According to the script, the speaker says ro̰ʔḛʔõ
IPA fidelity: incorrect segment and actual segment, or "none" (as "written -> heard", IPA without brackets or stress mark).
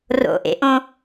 none